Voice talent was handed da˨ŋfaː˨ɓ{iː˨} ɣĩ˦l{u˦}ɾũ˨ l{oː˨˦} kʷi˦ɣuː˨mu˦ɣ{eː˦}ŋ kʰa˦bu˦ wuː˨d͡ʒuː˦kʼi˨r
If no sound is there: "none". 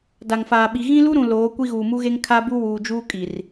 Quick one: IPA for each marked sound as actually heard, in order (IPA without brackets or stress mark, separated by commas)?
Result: i˨, u˦, oː˨˦, e˦